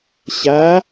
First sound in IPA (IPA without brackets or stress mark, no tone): ɕ